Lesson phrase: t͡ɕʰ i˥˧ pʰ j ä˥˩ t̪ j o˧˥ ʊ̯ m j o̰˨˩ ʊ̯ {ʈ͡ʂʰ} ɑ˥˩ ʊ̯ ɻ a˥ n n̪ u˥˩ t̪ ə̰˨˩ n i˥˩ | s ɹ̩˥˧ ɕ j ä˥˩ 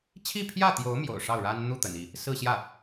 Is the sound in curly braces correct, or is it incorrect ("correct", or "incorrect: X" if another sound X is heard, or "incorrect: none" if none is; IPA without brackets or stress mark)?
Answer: incorrect: ʂ